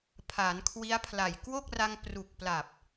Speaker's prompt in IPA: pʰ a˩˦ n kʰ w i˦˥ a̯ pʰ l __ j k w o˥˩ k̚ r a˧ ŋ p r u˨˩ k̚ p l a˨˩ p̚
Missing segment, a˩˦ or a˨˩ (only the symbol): a˨˩